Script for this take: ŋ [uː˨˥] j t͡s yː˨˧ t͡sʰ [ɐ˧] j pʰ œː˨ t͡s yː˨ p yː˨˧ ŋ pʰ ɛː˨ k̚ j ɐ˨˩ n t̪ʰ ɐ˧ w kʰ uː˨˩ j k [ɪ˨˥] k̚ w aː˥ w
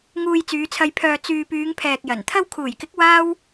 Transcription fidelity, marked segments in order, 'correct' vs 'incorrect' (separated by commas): incorrect, correct, correct